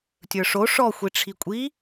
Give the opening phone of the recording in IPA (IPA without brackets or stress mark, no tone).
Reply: tʲ